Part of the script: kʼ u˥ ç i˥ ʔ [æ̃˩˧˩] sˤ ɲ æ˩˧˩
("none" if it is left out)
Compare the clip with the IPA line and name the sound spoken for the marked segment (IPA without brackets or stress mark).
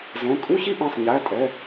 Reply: æ̃˩˧˩